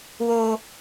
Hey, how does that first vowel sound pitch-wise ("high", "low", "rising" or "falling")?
high